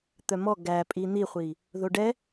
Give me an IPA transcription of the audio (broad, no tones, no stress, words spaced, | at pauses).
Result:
t̪œmɔ ɡæ pʼin̪iχʷi | ðoɖɛ